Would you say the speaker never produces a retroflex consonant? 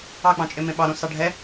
no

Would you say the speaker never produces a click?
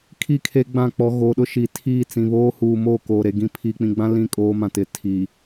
yes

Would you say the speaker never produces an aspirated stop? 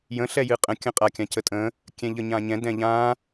yes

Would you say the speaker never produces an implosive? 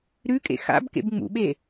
no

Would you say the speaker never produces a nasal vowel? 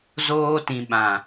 no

